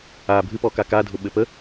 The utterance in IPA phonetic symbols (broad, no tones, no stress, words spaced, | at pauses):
a bʱɨpɔ kakadʱʊ ɓɘpə